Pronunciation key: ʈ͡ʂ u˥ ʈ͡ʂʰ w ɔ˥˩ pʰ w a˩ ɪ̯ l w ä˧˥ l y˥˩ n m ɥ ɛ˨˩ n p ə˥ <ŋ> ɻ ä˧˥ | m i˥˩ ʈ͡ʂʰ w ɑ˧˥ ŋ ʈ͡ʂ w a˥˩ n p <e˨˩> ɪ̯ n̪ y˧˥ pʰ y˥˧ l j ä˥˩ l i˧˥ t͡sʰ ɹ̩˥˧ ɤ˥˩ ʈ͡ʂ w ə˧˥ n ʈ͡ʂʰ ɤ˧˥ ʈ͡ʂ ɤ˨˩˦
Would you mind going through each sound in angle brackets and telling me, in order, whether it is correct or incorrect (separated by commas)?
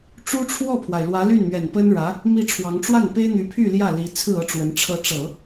incorrect, incorrect